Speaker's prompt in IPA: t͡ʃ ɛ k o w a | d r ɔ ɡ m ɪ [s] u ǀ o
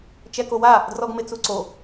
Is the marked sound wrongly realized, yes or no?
yes